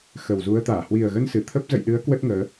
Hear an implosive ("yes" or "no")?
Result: yes